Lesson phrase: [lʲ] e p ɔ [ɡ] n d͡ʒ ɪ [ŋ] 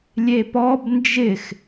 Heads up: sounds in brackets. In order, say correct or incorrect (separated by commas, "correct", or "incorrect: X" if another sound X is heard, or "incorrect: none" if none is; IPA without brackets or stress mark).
correct, incorrect: b, incorrect: x